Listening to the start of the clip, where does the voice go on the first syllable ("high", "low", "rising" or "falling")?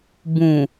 low